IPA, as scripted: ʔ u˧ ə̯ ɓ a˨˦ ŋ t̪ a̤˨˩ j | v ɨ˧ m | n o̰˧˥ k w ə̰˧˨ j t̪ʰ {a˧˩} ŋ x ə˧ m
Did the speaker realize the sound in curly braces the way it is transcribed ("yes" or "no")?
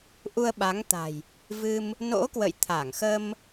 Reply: yes